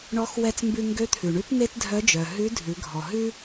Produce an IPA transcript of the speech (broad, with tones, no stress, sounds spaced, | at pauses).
ɳ ɔ˧˥ x w ɛ˧ t͡s m b ʉ˧ ŋ ɡ ø˧˥ t̪ʰ ʉ˩ ɳ ʉ˧˥ p n e˥ t dʱ œ˧˥ d͡ʒ œ˩ ɦ ʉ˧˥ dʱ ʉ˩˧ ɡʱ ɔ˩ ɦ ʉ˥